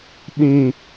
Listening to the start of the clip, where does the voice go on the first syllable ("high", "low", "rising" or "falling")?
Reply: high